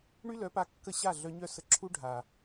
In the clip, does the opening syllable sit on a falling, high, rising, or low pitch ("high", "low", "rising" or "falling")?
high